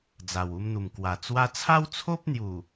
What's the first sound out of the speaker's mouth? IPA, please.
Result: d͡z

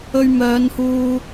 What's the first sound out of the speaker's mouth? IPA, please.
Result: ɵ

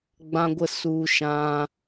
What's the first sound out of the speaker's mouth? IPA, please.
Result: ɡ͡b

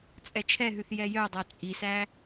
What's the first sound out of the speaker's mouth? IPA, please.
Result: t͡sʼ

